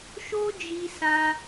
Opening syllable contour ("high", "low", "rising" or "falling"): high